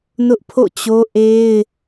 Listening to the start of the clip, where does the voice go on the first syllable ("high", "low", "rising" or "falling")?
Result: high